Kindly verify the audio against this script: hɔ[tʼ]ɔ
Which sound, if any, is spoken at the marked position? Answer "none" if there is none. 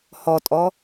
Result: tʼ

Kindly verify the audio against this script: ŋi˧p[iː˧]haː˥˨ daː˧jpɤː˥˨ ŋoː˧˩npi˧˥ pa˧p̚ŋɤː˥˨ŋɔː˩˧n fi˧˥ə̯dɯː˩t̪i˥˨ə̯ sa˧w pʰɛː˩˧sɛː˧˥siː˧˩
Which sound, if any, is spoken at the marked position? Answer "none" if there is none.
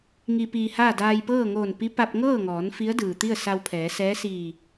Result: iː˧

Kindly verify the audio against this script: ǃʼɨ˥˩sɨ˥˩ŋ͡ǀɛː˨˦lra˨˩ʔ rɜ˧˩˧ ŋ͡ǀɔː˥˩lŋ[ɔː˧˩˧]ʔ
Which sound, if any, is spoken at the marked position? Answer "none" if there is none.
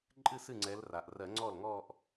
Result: ɔː˥˧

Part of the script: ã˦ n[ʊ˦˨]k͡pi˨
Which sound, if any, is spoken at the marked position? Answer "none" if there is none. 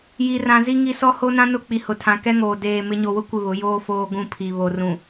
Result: ʊ˦˨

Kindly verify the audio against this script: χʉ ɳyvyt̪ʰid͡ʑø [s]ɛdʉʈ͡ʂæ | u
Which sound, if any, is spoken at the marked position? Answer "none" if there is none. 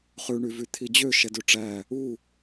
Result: ʃ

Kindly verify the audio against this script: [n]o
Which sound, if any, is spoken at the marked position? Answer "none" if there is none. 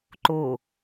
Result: ǃ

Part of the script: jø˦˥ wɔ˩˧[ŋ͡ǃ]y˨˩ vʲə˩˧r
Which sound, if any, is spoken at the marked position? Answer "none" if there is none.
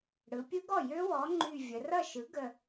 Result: ŋ͡ǃ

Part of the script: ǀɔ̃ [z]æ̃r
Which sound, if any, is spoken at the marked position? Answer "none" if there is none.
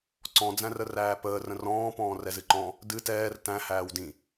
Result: d͡z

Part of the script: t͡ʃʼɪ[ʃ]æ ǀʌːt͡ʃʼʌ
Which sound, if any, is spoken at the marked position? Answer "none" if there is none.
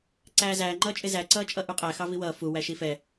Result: z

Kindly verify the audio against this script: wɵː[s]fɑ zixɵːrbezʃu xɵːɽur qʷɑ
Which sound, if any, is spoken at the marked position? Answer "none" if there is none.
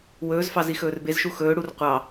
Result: z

